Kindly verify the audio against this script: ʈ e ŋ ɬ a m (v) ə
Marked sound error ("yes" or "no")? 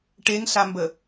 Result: yes